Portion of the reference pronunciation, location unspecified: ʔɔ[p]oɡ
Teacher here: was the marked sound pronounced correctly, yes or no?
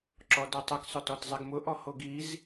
no